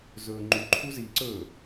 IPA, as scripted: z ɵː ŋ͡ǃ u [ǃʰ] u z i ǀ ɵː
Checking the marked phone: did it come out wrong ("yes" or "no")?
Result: no